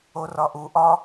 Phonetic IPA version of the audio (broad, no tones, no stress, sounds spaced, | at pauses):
o r ɒ ʔ u ʔ ɒ